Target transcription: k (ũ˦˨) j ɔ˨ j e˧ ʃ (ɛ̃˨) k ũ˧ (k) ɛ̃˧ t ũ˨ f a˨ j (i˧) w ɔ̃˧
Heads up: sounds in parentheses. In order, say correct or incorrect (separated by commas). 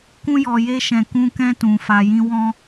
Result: incorrect, correct, correct, incorrect